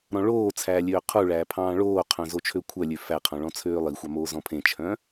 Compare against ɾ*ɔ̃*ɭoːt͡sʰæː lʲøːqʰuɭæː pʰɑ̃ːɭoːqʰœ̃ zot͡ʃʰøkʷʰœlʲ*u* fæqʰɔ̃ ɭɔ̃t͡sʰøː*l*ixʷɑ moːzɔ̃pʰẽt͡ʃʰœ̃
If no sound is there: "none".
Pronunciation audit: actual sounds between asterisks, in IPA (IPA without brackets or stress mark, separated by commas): ɔ̃, ø, lˠ